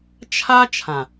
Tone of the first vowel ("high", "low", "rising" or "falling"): high